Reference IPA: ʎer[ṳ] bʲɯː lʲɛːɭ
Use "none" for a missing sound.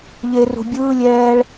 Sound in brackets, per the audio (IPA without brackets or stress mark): ṳ